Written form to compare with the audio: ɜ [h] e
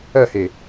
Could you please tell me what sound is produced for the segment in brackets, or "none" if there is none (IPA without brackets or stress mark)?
h